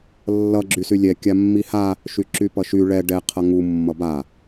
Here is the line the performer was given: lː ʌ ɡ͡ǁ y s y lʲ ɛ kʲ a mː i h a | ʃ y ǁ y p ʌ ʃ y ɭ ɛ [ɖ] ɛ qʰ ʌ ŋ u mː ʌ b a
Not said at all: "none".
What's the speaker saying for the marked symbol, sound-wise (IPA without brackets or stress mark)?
ɖ